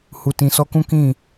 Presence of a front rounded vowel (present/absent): absent